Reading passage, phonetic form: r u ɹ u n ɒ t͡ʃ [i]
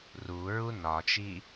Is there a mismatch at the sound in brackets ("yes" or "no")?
no